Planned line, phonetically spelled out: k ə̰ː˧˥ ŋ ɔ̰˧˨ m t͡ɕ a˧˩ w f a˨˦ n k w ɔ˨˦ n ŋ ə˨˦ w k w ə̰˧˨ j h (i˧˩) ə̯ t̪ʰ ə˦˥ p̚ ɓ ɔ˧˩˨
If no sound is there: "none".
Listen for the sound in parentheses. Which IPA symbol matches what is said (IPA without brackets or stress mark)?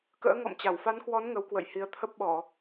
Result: i˨˦